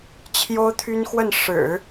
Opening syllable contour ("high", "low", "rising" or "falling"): high